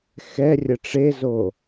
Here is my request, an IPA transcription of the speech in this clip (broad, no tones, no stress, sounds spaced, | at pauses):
x ɛ rʲ ə ʈ͡ʂ e z o